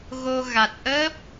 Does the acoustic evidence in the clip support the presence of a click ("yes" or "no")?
no